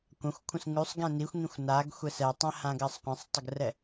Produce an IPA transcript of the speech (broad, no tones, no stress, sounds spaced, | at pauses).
kʷ ã xʷ kʷʰ ə̃ s ŋ ʉ sˤ ɡ ɛ̃ n i xʷ ŋ ĩ xʷ n a ɡ xʷ ɛ s ɛ tˤ ɛ̃ h ã ɡ ɜ sˤ qʷ ẽ sˤ tˤ ə ɡ r ɛ